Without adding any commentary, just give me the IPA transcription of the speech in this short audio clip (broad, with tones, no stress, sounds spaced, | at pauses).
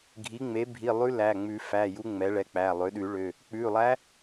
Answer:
ɡʱ i˩˥ ŋ͡m e˩˥ bʱ i˩˧˩ lˠ ʉ˧˥ l æ˩˧˩ ŋ͡m ʉ˨˩˦ f æ˩˧˩ j u˧˥ ŋ͡m ɛ˩˥ ɭ ɛ˩˧˩ k͡p æ˩˧˩ lˠ ø˩˥ ɗ ʉ˨˩˦ ɭ ø˩˧˩ | k͡p ʉ˩˧˩ lˠ æ˧˥